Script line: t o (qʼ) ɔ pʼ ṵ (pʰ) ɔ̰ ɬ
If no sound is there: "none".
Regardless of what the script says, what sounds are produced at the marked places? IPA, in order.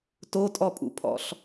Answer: tʼ, pʰ

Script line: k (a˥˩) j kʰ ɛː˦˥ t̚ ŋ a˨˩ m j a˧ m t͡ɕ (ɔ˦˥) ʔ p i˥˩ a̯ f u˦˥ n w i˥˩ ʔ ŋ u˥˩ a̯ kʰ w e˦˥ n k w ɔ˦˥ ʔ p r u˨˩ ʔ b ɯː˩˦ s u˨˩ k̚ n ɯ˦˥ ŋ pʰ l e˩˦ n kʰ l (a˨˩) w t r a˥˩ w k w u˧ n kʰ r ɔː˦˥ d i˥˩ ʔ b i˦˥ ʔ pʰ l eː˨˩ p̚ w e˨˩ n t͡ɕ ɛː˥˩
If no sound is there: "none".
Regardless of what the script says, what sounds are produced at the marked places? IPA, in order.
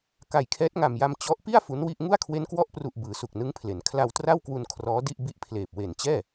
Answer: a˨˩, ɔ˦˥, a˧

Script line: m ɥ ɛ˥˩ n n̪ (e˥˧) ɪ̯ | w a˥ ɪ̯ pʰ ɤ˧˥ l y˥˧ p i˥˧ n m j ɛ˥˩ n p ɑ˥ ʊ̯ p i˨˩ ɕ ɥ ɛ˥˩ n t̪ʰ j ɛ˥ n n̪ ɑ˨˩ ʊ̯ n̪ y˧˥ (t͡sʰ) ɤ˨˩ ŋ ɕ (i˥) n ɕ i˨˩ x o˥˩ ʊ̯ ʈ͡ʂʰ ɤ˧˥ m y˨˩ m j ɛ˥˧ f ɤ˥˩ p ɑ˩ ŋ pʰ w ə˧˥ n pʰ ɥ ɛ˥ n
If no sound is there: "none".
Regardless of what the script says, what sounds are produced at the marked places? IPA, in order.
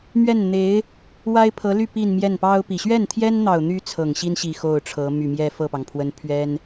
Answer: e˧˥, t͡sʰ, i˥

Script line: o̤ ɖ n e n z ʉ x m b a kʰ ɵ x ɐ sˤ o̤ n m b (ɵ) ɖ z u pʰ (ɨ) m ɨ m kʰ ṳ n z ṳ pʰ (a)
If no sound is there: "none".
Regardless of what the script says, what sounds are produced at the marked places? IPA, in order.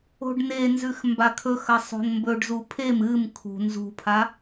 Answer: ɵ, e, a

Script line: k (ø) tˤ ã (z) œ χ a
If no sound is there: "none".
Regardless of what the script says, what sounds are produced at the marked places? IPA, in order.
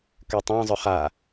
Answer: ø, zˤ

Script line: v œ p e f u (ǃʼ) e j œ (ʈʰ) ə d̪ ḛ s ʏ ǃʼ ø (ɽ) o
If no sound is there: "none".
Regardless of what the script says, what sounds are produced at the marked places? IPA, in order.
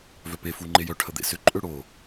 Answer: ŋ͡ǃ, ʈʰ, ɽ

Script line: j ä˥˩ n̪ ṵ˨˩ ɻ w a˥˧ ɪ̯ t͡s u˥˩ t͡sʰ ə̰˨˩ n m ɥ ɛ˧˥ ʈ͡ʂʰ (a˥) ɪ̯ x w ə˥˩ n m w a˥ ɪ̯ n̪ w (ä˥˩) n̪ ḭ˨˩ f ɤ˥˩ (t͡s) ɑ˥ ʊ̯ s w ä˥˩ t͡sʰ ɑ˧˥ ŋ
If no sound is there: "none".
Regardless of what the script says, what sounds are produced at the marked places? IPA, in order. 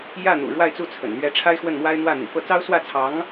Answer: a˥, ä˥˩, t͡s

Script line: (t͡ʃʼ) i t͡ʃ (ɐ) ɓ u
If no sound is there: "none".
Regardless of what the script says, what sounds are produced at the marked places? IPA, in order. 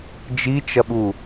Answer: d͡ʒ, ɐ

